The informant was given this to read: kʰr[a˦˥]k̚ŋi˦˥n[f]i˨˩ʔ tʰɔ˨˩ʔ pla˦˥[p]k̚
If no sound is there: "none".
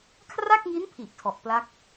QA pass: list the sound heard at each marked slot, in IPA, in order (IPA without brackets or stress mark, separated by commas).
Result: a˥˩, pʰ, none